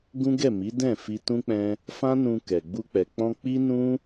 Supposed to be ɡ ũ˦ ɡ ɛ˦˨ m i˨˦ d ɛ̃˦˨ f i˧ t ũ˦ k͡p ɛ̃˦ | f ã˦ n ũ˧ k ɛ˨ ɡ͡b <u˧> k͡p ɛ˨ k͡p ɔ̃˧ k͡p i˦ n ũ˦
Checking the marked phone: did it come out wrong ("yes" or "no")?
no